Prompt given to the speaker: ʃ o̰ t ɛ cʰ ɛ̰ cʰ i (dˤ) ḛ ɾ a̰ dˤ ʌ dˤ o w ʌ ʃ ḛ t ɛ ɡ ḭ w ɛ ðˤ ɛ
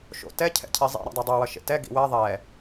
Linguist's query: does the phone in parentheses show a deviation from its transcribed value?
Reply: yes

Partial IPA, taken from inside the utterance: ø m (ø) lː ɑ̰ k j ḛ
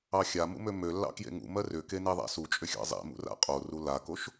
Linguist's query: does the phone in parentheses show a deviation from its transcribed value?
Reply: no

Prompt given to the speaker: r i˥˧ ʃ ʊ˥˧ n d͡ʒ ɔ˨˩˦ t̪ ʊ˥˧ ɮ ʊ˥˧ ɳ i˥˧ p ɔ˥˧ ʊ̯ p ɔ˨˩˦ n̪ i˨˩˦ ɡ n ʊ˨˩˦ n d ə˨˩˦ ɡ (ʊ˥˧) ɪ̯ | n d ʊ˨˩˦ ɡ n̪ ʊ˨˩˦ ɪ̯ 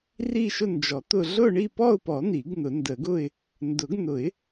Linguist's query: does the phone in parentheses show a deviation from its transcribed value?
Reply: no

